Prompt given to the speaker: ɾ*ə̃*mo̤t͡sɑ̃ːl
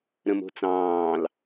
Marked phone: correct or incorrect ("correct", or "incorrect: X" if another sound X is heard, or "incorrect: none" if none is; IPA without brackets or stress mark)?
correct